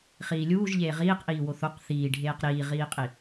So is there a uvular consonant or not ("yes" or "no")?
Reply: yes